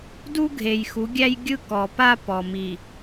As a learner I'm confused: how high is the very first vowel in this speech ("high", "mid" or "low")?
high